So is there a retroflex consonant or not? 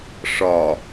yes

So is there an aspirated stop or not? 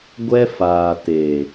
no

